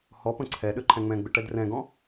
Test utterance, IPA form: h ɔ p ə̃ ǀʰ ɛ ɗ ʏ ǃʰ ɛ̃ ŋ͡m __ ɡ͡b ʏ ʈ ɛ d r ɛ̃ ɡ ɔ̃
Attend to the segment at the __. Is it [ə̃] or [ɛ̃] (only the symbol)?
ɛ̃